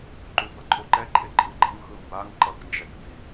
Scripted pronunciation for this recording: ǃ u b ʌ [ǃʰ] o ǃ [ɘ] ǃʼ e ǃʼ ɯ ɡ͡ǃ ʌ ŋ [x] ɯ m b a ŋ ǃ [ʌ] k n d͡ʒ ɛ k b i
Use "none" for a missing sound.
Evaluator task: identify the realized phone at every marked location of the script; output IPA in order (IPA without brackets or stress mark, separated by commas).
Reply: ǃʰ, ɛ, x, ʌ